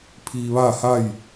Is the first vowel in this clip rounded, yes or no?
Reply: no